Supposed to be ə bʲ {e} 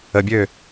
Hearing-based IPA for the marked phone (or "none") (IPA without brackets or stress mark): ø